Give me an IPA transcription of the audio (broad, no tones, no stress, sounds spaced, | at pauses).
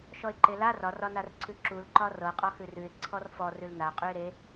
ʃ ɔ ɪ̯ ǃ e l a r ɒ r ɒ n a r ǀʰ ʉ ǁ u l ǃ ɒ r ɤ qʼ ɒ x ʉ r ʉ ɪ̯ ǀʰ ɔ r f ɔ r ʉ l n a qʼ ʉ ɪ̯ ɾ e